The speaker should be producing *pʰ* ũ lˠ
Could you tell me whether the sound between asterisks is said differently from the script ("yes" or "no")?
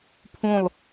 no